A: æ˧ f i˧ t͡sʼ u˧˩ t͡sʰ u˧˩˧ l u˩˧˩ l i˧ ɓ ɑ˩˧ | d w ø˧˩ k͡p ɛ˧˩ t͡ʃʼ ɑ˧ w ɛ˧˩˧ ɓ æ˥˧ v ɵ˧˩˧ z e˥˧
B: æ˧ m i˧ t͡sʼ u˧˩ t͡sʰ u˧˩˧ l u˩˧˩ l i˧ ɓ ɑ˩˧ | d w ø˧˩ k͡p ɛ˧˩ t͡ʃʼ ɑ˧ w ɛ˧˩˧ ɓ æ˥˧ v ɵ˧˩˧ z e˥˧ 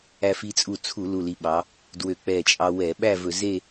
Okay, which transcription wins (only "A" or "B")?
A